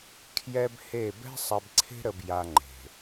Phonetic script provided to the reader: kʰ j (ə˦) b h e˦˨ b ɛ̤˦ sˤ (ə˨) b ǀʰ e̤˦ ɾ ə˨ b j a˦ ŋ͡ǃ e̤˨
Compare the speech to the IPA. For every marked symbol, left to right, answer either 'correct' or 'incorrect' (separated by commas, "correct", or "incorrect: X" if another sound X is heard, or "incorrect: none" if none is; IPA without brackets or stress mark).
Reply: incorrect: ɛ˦, incorrect: ɛ˨